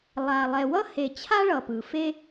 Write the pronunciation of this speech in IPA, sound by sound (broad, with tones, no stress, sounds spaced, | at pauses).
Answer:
lˠ a˨ lˠ ɛ˨ w ʌ˥ h e˨ t͡ɕʰ a˥ ɭ ʌ˨ p ɯ˩ f e˦